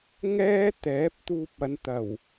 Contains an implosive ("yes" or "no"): no